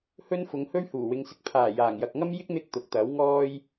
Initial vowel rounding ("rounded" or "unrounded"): rounded